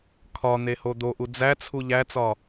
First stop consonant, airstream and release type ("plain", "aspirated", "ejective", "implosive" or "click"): aspirated